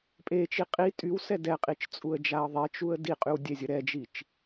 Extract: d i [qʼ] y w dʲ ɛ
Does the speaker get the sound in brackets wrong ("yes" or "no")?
no